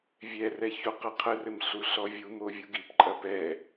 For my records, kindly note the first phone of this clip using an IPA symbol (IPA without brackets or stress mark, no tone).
vʲ